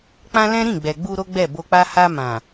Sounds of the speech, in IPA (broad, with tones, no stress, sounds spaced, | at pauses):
k͡p ã˦ l ɛ̃˦ ɾ ĩ˦˨ ɡ͡b ɛ˨ ɡ͡b u˧ ɾ o˦ ɡ͡b ɛ˦˨ b o˧ k͡p a˦ h a˧ m ã˨